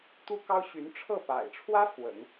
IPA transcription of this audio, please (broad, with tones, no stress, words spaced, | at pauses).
t̪u˥kɑ˥ʊ̯ɕy˧˥n ʈ͡ʂʰɤ˥˩pa̰˨˩ɪ̯ʈ͡ʂʰwä˥ fwə̰˨˩˦n